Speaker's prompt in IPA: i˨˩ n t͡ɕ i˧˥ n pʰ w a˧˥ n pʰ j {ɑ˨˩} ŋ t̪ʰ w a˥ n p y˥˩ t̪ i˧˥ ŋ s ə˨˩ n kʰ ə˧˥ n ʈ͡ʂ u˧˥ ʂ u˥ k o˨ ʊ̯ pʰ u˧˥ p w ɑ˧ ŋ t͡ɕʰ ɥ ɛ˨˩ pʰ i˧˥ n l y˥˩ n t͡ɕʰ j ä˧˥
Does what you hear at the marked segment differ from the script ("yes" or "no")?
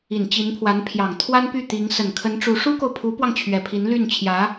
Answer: no